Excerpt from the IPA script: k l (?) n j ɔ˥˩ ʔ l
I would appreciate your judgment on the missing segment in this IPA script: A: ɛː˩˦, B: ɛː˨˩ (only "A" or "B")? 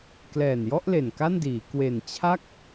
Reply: B